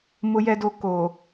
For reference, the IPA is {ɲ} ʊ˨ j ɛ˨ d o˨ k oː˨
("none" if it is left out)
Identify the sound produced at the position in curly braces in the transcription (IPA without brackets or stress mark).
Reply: m